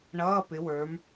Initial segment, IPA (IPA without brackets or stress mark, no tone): ɳ